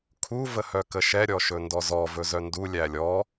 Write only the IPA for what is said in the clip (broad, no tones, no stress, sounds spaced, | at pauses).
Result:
kʰ u v ə h œ k ə ʃ ɛ ɾʲ ɔ ʃ ɵ n d ɔ z ɔ v ɵ z œ n d u lʲ æ lʲ ɔ